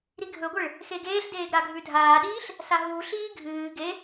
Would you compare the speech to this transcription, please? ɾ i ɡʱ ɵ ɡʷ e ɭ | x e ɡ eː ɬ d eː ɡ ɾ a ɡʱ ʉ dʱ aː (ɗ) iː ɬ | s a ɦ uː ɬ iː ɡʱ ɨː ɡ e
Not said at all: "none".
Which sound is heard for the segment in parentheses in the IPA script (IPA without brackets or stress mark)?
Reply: ɗ